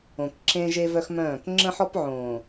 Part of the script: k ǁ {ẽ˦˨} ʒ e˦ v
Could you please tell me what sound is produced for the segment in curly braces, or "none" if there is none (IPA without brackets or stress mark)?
ẽ˦